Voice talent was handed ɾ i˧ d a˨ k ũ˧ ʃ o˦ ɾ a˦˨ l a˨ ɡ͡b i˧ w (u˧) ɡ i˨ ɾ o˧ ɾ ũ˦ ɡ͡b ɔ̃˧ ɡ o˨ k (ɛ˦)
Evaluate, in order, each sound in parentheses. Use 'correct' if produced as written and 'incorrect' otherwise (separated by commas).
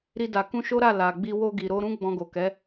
incorrect, incorrect